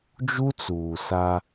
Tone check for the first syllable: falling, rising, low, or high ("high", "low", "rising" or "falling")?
high